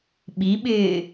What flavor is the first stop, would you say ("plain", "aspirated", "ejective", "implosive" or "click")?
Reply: implosive